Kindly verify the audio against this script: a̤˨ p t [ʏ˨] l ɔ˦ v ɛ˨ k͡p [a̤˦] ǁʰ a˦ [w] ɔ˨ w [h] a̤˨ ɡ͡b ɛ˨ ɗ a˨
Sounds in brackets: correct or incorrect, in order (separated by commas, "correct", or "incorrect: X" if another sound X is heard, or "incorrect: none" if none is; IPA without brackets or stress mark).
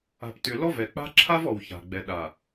correct, correct, incorrect: v, incorrect: ç